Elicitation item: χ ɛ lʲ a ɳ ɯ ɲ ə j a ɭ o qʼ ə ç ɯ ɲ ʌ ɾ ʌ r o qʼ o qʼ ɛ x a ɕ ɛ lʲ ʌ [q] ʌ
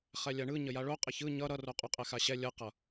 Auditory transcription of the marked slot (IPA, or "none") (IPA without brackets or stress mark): q